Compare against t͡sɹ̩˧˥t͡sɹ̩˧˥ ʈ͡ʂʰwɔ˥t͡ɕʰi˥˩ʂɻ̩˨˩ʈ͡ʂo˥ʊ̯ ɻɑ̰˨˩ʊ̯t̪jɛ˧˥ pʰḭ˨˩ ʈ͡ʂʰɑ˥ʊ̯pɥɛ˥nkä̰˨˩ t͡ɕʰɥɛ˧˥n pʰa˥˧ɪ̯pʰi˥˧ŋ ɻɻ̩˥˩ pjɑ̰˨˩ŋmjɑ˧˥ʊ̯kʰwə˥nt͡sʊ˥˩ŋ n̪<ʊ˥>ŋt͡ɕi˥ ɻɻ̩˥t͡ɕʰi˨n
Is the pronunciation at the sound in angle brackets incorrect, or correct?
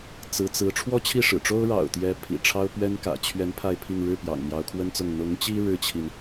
incorrect